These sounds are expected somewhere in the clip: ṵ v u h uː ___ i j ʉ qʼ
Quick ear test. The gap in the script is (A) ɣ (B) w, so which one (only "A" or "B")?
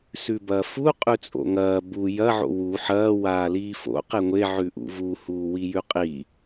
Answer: B